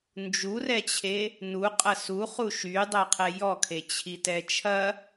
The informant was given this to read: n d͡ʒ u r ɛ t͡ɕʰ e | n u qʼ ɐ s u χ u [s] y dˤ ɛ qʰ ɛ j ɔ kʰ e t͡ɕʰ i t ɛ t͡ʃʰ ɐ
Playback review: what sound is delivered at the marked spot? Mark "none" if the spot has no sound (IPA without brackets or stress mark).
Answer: ʃ